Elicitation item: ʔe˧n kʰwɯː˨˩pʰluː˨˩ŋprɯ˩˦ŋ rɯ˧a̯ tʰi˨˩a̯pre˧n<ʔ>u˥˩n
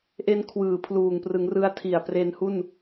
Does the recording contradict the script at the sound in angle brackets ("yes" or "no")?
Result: yes